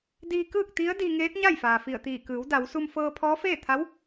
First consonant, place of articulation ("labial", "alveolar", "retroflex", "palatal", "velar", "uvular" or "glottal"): alveolar